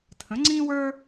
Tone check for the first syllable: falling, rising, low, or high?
rising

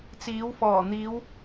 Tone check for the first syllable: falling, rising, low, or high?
rising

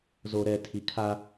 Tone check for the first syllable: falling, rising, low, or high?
low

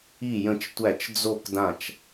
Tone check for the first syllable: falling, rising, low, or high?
falling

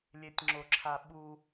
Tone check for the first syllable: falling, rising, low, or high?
high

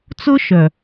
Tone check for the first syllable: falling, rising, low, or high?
high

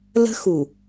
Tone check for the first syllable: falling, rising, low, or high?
high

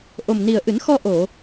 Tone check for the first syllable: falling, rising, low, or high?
low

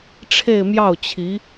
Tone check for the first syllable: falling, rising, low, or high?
falling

